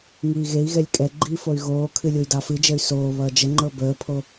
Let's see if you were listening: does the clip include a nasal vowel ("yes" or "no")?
no